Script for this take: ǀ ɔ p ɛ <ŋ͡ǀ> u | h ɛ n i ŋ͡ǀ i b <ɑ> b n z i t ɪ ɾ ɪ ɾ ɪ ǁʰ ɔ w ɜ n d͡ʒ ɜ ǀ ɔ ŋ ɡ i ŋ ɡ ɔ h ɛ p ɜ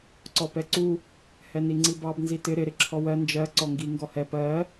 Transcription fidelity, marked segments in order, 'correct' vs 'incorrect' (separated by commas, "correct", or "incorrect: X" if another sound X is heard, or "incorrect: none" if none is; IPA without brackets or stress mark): incorrect: ǀ, correct